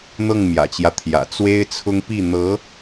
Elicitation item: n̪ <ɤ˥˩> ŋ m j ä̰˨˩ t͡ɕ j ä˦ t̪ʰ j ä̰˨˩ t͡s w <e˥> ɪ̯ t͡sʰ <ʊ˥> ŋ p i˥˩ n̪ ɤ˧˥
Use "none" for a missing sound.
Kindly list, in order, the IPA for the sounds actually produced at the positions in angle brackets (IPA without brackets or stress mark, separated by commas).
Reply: ɤ˥˩, e˥, ʊ˥